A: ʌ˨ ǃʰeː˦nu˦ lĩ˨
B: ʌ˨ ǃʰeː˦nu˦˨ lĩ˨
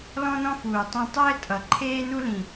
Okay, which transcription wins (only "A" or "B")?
A